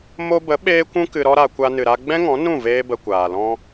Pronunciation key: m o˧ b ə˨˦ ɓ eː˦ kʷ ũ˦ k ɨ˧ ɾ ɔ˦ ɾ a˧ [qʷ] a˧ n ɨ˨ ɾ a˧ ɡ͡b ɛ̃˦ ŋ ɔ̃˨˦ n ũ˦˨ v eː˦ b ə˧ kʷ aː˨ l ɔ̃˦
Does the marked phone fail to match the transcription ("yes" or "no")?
yes